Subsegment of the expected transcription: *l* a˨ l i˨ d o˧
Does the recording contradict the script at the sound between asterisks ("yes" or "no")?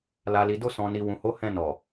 no